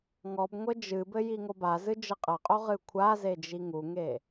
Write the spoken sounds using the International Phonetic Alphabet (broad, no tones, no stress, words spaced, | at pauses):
ŋɔbŋʷɘ d͡ʒɨbɘ jiŋobazɨ d͡ʒɘqʼɐqʼo ʁɨkʷʰaze d͡ʒiŋuŋe